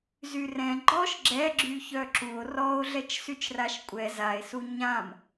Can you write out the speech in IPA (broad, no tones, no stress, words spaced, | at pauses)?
zyrɛ̃ ɡ͡ǃɔʃ ɡ͡ǁɛ ɡ͡ǁyçœǁuo̯ rɔo̯ ɮɛt͡ʃsyt͡ʃraʃkʷʼɛ zae̯su ɲãm